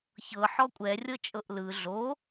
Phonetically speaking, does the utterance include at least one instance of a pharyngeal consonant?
yes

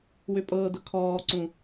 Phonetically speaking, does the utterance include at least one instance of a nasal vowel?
yes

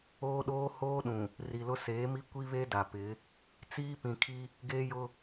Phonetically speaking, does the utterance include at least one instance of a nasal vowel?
yes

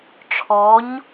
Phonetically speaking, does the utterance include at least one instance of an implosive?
no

